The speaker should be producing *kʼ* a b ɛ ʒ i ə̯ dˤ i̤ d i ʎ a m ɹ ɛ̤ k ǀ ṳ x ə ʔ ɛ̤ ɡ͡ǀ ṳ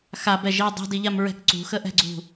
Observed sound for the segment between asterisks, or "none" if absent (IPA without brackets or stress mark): x